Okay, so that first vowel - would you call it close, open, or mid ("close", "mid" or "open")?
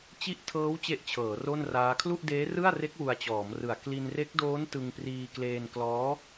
close